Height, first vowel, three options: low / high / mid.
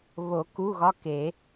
mid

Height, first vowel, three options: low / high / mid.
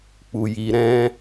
high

